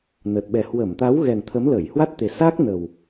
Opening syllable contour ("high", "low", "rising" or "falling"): low